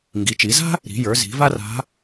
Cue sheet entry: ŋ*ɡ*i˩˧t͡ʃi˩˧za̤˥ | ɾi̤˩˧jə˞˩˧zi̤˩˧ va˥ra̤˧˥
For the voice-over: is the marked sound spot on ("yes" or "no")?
yes